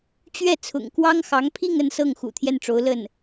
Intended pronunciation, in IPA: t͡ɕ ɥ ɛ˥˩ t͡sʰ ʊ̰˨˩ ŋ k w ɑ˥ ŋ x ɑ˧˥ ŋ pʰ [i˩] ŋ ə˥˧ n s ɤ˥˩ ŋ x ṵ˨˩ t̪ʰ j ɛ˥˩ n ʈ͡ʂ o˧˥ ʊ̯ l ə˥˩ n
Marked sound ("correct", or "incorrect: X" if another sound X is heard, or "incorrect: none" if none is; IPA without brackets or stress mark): incorrect: i˥˧